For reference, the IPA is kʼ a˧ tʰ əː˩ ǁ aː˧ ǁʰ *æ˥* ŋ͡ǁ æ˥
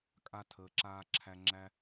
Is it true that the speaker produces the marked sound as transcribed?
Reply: no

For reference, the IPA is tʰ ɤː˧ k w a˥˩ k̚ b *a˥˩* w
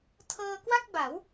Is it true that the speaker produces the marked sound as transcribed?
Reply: no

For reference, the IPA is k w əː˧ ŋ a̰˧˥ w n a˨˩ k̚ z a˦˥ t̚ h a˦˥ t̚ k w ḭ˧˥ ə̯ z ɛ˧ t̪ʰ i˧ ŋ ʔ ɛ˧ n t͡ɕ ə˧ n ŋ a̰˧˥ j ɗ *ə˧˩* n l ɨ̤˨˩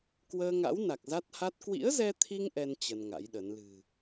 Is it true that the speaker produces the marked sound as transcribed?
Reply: no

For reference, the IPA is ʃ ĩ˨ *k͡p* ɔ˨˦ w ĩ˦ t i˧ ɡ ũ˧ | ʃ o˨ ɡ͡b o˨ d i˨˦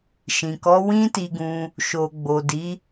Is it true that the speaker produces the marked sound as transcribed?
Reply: no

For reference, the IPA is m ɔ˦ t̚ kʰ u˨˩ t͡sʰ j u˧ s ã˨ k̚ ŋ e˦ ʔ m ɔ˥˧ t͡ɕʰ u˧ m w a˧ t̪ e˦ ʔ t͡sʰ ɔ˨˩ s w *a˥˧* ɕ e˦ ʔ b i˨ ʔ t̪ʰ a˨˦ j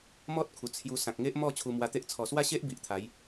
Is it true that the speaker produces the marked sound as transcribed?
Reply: yes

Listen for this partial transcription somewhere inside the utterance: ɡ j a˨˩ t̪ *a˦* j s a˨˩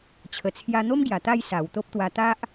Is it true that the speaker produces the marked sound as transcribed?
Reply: no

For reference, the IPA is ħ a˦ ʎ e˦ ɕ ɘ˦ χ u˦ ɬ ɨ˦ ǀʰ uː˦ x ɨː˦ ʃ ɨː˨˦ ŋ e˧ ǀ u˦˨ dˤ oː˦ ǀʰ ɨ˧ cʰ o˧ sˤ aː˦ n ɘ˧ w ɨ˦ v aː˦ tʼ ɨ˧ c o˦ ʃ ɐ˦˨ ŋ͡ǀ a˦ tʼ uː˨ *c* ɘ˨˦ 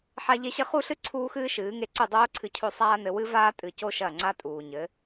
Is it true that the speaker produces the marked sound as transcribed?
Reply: no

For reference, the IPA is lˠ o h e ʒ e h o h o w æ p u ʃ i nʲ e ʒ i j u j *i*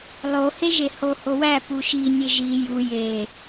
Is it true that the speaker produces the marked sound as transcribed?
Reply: no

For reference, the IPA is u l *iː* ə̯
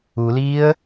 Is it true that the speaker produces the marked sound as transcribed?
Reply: yes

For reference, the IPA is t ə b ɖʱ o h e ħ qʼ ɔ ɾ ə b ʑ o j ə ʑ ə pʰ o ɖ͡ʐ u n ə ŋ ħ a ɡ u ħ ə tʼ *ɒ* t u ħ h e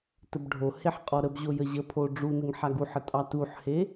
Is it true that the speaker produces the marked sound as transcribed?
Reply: no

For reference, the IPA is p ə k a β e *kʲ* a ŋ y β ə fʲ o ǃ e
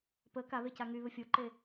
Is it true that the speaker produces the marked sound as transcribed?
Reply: no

